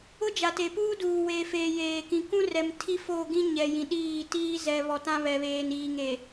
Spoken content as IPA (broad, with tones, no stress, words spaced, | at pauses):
ʊ˦d͡ʒa˨te˨puː˦ duː˨weː˨feː˨ jeː˨kĩ˨ kũ˦rɛ˨m tʰi˦ fo˦˨ɡĩ˦ɲɛ˨ jĩ˨ɗiː˦˨ tiː˦ zɛ˨βɔ˨ tã˦βɛ˨βeː˨n iː˨ŋe˨